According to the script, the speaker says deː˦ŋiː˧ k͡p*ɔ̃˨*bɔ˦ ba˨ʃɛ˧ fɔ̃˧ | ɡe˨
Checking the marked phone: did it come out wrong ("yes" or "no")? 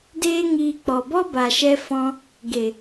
yes